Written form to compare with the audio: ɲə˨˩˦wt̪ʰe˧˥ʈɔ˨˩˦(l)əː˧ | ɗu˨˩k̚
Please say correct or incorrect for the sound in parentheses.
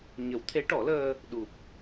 correct